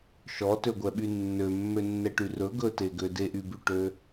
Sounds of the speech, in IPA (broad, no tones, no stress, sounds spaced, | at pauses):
ʃ ɔ t ø ɡʷ ɛ ɓ y nː ø mː ø nː ɛ ʈ y r ɵ ɡ ɵ t e ɡ ø d e ʔ y b y ʈ ø